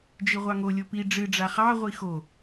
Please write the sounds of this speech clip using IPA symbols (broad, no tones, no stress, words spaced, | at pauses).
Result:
d͡ʒiʁʷɑŋo lʲopi ɖ͡ʐɨ ɖ͡ʐaχɑ ʁʷixo